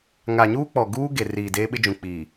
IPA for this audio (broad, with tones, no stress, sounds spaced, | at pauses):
ŋ a˨ ɲ uː˦ k͡p ɔ˨ ɡ uː˦ ɡ e˨ r iː˨ d eː˦ ɓ ɪ˦ d͡ʒ ũ˨ k͡p iː˨